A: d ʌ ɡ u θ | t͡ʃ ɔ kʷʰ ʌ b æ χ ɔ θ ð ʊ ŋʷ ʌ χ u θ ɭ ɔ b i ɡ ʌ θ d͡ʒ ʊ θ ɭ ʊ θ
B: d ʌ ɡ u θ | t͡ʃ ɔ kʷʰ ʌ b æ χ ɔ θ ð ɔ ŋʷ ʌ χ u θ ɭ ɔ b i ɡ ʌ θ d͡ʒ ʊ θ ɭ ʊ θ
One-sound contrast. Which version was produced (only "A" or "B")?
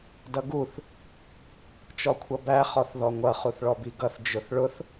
B